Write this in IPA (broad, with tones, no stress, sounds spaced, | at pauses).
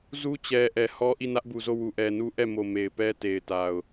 z u˦ t͡ɕ ɛ˨ ʔ ɛ˨ h ɔ˦ ʔ i˦˨ n ä˦ ʔ b u˨ z o˦˨ w u˨ ʔ ɛ˨ n u˦ ʔ ɛ˦˨ m o˨ m e˨ ɪ̯ p ɛ˦ t e˨ ɪ̯ t a˨ ʊ̯